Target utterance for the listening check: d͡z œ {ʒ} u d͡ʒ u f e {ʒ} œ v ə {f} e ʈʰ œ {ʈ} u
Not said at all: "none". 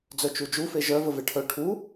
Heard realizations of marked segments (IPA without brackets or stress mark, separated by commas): t͡ʃ, ʒ, v, ʈʰ